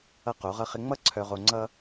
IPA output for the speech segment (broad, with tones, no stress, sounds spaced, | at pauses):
ʌ˦ q o˨˦ ʁ ʌ˦ χ ɪ˦ ŋ͡m ʌ˦ ǀʰ œ˨ ʁ o˨ ŋ͡ǀ ʌ˦